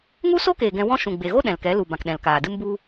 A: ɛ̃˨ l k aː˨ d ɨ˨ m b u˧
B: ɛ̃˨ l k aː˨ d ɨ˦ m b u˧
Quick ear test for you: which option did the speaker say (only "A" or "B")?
B